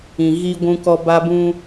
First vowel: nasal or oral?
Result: nasal